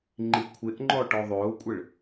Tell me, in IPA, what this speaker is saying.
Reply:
ŋ͡ǃ i kʷʰ ɪ ʔ ŋ͡ǃ ɔ ʈ ɔ ðˤ ʊː kʷʼ ɪ ɭ

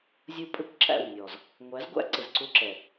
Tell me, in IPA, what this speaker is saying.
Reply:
zʲ u˦ pʼ ɪ˦ kʷ ǁ æ̰˦˨ w nʲ ɔ˨ z | ŋʷ æ˨˦ z ɡʷ æ̰˦ ǀ ɪ˨ z ǀ u˦ ǁ ɛ˨

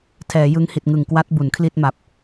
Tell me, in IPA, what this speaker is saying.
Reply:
tʰ ɛː˩˦ j ɯ˦˥ ŋ h i˨˩ t̚ ŋ ɯ˨˩ ŋ k w a˦˥ t̚ b u˩˦ n kʰ l i˥˩ t̚ m a˨˩ p̚

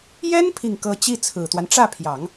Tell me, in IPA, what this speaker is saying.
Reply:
j ɛ˥ n pʰ i˥˩ ŋ k ɤ˥ t͡ɕ i˥˩ t͡sʰ ɹ̩˨˩ t̪ w a˦ n ʈ͡ʂ ä˥˩ pʰ j ɑ˨˩˦ ŋ

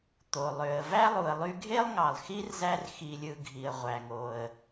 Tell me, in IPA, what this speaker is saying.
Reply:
t̪ o˩ lˠ ø˩ ə̯ v æ˥ lˠ u˨ ə̯ lˠ y˦ ɡʱ e˥ lˠ ŋ ɑ˩ lˠ x i˦ r z æ˦ r x i˨ lʲ ɯ˨ ɡʱ i˩ ə̯ ʁʷ æ˩ ŋ o˩ ə̯

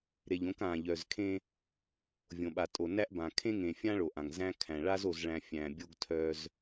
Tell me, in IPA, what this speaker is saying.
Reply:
ɾ e˨ ʎ õ˨˦ k ã˨ ʎ œ˨ z kʰ ẽ˦ | vʲ õ˨ ɓ a˨ tʼ o˨ n æ˦ ʔ b ã˨ kʰ ẽ˦ ŋ ẽ˨ fʲ ã˦ ɭ o˨ ʔ ã˨ ŋ z æ̃˦ kʰ æ̃˨ ɭ a˦ z o˨ z ɭ æ̃˨ fʲ æ̃˨ bʲ o˦ ɡ tʰ œ˦ z

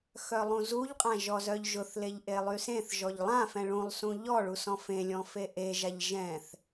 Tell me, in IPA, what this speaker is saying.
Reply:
x œ lˠ ũ z u ʎ qʼ ã ʒ ɔ z œ ʎ ʒ ʊ θ l e ʎ ʔ e lˠ y s ẽ θ ʒ ɔ ʎ lˠ ã f ɛ̃ ɭ ũ lˠ s ũ ʎ ɔ ɭ u s ɔ̃ f ẽ lʲ ɔ̃ f e ʔ e ʒ a ʎ ʒ ɛ̃ θ

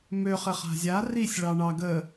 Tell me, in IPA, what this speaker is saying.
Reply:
m ø χ ɘ χ a̤ zʲ a r i sʲ ɭ ɑ ɳ ɑ ɡ ə

